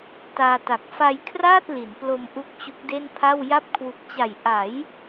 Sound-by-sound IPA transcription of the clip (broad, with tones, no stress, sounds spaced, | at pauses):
t aː˧ t a˨˩ k̚ f a˧ j kʰ r aː˥˩ t̚ l i˩˦ n p l o˧ m ʔ u˦˥ k̚ t͡ɕ u˦˥ k̚ d e˥˩ n pʰ a˥˩ w j a˦˥ p̚ kʰ w u˨˩ k̚ t͡ɕ a˨˩ j ʔ a˩˦ j